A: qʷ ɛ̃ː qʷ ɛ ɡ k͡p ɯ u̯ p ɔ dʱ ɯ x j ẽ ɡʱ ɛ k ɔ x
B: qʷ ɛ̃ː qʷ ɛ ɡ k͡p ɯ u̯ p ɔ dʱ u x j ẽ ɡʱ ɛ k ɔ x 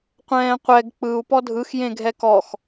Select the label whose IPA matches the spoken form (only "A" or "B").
A